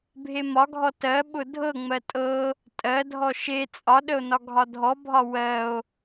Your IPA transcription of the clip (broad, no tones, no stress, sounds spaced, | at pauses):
bʱ e m ɒ ɡʱ ɔ t ɜ ɓ ʊ dʱ ɤ ŋ͡m ɜ tʼ ɤ | tʼ ɜ dʱ ɔ ʃ e t͡sʼ ɒ ɗ ə o̯ n ɒ ɡʱ ɒ dʱ ɔ bʱ ɒ w ɜ o̯